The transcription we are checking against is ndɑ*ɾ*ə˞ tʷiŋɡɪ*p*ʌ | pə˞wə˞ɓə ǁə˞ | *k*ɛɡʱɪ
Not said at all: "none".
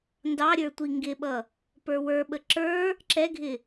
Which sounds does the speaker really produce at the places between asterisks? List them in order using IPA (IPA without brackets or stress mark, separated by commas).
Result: ɾʲ, ɓ, ǁ